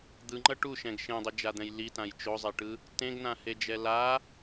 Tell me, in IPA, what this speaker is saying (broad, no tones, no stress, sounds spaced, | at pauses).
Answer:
d̪ ɯ ŋ͡ǃ ʌ ʈ u ʃ ɛ̃ ɡ ʃ ẽ dˤ ɯ d͡ʒ a d̪ ɛ̃ j l i t ã j t͡ʃ o zˤ e ʈ ɯ | t ẽ ɡ n ã h e d͡ʒ ɛ l a